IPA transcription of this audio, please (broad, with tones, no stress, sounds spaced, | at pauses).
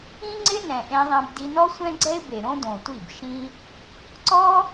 ĩ˦ ŋ͡ǀ ɪ˦ n ɛ̃˨ ʔ ẽ˧ ðˤ ẽ˧ b d i˧ n ɔ˦ sʷ ɛ̃˦ ɡ͡ǀ ɛ˦ ɪ̯ b e˨ ɾ õ˦ d õ˨ tʷ i˦˨ b ʃ ĩ˦ | ǀ ɔ˦